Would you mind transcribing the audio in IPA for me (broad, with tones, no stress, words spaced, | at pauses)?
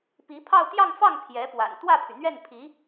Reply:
pi˧˥pʰɑ˥˧ʊ̯ t̪jɑ˥˧ŋfɑ˥˩ŋ pʰjɛ˧˥pwa̰˨˩n t̪wä˥˩pʰy˩n̪ɥɛ˥˩npʰi˧˥